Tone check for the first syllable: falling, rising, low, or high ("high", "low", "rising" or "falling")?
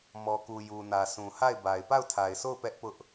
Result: low